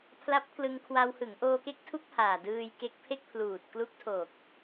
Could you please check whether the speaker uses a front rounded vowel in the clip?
no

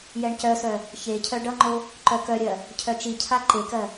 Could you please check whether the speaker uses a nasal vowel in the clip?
no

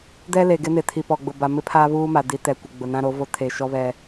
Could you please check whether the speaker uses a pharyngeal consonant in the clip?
no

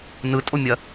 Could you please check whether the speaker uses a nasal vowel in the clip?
no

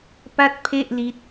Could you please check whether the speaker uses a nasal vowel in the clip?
no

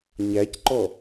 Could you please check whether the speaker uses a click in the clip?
yes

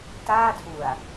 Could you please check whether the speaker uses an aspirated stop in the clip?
yes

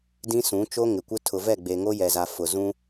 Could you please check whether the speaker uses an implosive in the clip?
no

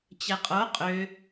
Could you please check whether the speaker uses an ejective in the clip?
yes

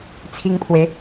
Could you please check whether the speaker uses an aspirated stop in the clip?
yes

